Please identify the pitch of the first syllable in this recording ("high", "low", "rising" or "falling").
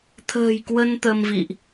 low